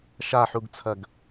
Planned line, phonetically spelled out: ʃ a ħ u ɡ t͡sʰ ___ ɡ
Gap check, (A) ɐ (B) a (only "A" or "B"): A